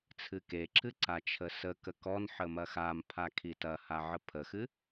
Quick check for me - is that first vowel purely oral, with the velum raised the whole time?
yes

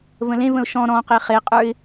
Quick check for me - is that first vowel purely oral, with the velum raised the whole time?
no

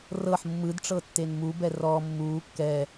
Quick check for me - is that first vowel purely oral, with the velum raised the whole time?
yes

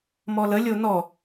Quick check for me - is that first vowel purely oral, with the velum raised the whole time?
yes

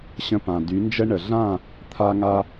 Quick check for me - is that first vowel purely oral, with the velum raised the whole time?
no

